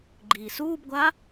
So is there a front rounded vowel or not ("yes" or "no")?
no